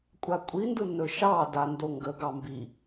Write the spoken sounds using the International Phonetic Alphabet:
kʷʼ a kʷʼ i n d ɯ n ɵ ʃ ɑ d a n d o ŋ ɡ ə ɡ ɑ m b i

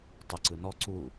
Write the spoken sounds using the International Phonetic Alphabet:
tˤ ə ǀ ɯ n ɔ ǀ u

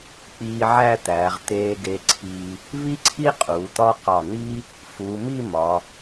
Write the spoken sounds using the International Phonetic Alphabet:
k͡p iː˧ ʕ æ˥˧ t̪ æː˩˧ ʁ t̪ eː˧ ɡ e˧ ǀʰ iː˧ | β i˥ ǀʰ i˥ qʼ uː˩˧ t̪ ɒ˥ q ɒ˧˩ n̪ iː˥ | f uː˩˧ m i˥˧ m ɒ˩˧

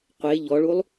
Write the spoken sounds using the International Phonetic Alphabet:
qʷ e ʎ ɔ ɭ u lˠ

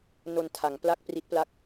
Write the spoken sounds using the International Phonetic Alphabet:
n o˧ n tʰ a˩˦ ŋ p l a˥˩ k̚ p r i˦˥ t̚ p l a˥˩ k̚

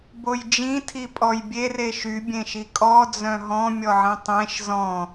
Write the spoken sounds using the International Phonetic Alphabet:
b o j d͡ʒ ĩ tʰ i pʼ ɔ j bʲ e r e ʃ y bʲ ẽ ʃ i kʼ ɔ d͡z œ̃ ɦ ɔ̃ mʲ ɔ ʕ ĩ tˤ ẽ ʃ z ɔ̃

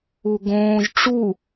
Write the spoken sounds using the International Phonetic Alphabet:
u ɡ õː ʒ ʈ͡ʂ u

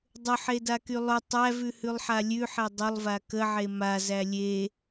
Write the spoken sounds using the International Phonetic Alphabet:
dˤ ʊ ħ e d a k y lˠ ʊ tˤ æ v ʉ h ʉ lˠ ħ a lʲ ʉ ħ e dˤ ʊ lˠ v a k ə ʕ e m a z æ lʲ e

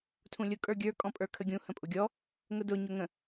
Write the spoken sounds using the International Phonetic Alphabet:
tʰ ũ lʲ ʊ kʼ ə˞ ɡʲ ə˞ kʼ ɔ̃ pʼ ə˞ kʰ ə ɡʲ ũ h ə̃ pʼ ʊ ɡʲ ɔ | ŋ ʊ d ʊ ɲ ʊ ŋ ə̃

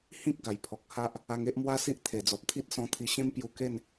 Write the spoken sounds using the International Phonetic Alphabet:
h ĩ˦ k̚ ɡ a˨˩ j pʰ ɔ˨ k̚ h a˦ ʔ | a˧ ŋ e˦ ʔ m w a˦ s i˦ ʔ t̪ʰ e˨˩ d͡z ɔ˨ p̚ t̪ʰ i˦ t̚ s ɔ̃˧ t̪ʰ i˧ ɕ ẽ˦ m p j u˧ k e˥˧ n

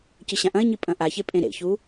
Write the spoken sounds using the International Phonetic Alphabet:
c ɨ ɕ ã ʔ ɐ̃ ɪ̯ ɲ i pʼ ɐ̃ ʔ a ç e pʼ ẽ ɾ ḛ ç u

